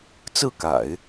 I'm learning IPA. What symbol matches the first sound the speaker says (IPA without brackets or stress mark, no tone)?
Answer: t͡s